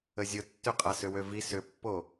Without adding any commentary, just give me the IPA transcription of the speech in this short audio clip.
əzʲʊtːø qʼasʏwøvi sʏpːo

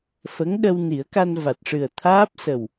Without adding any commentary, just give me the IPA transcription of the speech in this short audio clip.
fə˧˥ŋɗə˧w ni˨˩˦ə̯ka˧nva˨˩t̚ʂɨ˨˩ə̯ t̪ʰaː˦˥p̚sə˨˩w

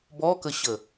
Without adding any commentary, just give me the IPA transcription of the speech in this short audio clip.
bɔkəɕə

